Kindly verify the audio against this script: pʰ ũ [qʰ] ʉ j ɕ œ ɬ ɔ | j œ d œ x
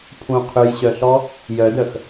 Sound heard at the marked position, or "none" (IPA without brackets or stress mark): qʰ